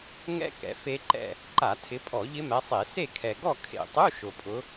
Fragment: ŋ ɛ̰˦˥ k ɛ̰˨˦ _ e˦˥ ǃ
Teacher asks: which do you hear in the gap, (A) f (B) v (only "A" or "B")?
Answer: A